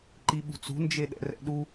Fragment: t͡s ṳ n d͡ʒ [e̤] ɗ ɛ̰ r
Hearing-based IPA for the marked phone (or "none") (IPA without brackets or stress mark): e